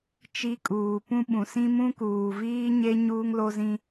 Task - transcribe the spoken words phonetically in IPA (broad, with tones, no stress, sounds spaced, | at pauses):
t͡ʃ i˦ kʼ uː˨ p ũ˦ ɓ ũ˨ s ĩ˦ m ũ˦ k uː˨ v iː˦ ɲ e˦ ɲ uː˦ ŋ l o˦ z ĩ˦